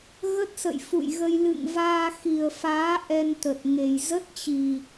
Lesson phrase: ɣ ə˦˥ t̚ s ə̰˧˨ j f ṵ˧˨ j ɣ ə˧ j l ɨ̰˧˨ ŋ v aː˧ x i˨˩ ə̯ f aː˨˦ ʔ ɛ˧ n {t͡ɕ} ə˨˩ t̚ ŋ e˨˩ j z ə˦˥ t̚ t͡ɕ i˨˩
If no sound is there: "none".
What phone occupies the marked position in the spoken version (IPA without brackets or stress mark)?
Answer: t̪